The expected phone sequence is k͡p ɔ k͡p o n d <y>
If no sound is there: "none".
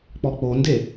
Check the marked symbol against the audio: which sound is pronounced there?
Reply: e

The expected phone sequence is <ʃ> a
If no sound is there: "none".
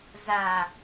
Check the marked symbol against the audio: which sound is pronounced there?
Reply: z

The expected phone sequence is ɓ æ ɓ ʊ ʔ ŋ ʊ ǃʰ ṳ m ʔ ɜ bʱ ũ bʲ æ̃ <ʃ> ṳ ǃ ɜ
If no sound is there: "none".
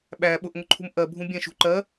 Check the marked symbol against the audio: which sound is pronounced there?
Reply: ʃ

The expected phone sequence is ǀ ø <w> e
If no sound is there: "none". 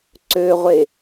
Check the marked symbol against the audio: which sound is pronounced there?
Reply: ʁʷ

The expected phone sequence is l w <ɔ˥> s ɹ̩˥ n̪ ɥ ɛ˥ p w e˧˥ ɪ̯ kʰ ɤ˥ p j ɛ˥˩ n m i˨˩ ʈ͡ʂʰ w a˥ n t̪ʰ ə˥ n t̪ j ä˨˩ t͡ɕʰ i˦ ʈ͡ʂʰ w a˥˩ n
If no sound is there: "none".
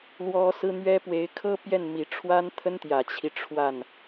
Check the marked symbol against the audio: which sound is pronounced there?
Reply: ɔ˥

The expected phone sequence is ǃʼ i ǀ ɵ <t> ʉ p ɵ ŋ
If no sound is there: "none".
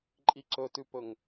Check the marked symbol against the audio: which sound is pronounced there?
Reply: t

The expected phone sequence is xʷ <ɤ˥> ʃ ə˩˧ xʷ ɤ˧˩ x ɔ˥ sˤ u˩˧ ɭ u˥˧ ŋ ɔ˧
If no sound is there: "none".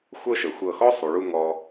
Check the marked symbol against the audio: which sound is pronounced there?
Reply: ɤ˥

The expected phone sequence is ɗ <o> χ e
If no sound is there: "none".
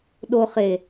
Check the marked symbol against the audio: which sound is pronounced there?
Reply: o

